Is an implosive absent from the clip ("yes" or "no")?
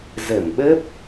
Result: no